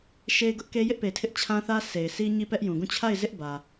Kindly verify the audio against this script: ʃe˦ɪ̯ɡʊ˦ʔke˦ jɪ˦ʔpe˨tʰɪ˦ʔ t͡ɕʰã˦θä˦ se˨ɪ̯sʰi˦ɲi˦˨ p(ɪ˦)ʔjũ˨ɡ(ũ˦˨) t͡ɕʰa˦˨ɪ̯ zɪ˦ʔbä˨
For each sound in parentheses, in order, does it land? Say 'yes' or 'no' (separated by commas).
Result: no, yes